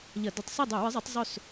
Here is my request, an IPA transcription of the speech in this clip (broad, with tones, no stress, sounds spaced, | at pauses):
ʎ ɐ˧˩˧ d ɵ˧˩˧ tˤ s i˥˨ dˤ o˧˩˧ w ɨ˨˥ zˤ ɐ˨˥ tˤ zˤ ɵ˥˨ s